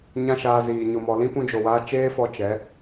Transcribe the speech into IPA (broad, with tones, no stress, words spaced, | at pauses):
ɲã˦ʃaː˧ziː˨ ɲo˨mɔ˨lĩ˦ pũ˧d͡ʒo˨waː˧ t͡ʃeː˦fɔ˧ t͡ʃɛ˨˦